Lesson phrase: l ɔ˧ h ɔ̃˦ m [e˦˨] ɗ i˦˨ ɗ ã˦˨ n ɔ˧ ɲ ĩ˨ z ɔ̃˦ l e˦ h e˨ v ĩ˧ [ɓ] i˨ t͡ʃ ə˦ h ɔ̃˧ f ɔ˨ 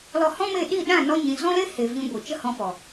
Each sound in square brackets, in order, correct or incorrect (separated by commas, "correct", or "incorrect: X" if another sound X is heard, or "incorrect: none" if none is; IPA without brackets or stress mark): correct, incorrect: ɡʷ